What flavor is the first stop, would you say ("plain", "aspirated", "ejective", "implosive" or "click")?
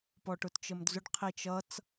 plain